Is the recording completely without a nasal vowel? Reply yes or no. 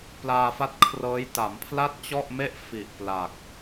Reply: yes